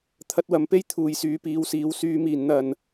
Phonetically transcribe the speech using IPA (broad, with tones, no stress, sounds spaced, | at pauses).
t̪ʰ ɐ˧ t̚ w ɐ˨ m p e˥ j t̪ʰ uː˨ j s yː˨˧ p iː˨˧ w s iː˨˧ w s yː˨˧ m iː˨˩ n n̪ ɐ˨˩ n